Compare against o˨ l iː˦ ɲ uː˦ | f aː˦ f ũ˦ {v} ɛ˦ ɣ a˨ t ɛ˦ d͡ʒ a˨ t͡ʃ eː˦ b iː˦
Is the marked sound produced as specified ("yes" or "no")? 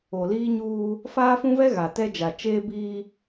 yes